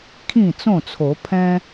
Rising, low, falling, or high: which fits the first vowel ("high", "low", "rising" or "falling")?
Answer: falling